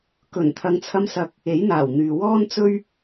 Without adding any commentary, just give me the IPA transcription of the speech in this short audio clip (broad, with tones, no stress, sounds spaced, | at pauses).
k ɵ˨˩ n t̪ʰ ɐ˨˧ ŋ t͡sʰ ɐ˧ m s ɐ˨ k̚ | e˨˥ j n̪ aː˨˩ w n̪ yː˨ w ɔː˥ n t͡s ɵ˥ ɥ